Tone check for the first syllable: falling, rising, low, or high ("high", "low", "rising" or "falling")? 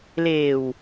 low